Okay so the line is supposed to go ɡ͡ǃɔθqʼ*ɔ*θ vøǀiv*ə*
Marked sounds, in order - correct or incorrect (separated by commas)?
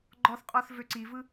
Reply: correct, incorrect